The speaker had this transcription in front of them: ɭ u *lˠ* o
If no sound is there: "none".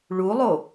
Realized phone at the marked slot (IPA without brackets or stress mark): lˠ